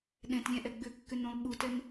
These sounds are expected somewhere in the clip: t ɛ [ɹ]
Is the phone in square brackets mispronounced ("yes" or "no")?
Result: yes